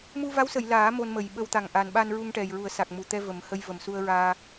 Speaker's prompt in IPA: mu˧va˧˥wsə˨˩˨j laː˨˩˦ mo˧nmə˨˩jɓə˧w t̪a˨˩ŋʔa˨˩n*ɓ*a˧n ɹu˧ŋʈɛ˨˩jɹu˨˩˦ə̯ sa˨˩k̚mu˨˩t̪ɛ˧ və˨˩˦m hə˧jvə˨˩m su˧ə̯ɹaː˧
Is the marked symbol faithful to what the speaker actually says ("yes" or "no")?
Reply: yes